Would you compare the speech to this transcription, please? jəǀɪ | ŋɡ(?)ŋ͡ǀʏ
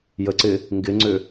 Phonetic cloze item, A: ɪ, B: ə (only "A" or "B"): A